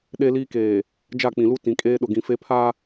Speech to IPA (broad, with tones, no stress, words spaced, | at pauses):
ɗe˦liː˦keː˨ | d͡ʒa˦˨k͡pĩ˨lu˦ tĩ˨kʼeː˦ɗʊ˨ ɡĩ˨fe˦ pʰa˦